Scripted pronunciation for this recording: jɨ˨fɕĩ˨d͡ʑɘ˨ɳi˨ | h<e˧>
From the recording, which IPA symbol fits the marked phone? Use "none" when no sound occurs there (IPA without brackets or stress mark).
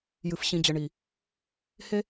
e˧